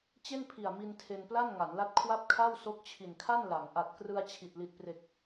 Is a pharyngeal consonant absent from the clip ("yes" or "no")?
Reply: yes